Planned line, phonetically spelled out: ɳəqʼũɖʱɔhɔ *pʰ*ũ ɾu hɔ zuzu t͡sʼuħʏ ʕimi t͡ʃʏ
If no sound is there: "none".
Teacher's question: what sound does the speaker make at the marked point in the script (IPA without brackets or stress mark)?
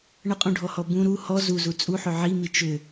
b